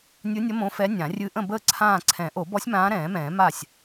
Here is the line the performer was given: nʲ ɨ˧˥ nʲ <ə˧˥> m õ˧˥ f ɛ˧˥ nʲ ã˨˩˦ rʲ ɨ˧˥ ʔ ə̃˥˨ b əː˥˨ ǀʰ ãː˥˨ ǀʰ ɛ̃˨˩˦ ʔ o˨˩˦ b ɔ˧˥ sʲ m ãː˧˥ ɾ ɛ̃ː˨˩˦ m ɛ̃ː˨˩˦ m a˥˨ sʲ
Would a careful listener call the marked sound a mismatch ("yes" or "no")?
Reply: no